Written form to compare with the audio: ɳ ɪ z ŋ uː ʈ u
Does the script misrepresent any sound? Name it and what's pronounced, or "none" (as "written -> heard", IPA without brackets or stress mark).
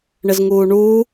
ʈ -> ɳ